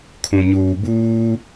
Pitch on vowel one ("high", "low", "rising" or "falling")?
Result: low